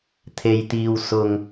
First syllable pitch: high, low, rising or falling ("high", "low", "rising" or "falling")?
low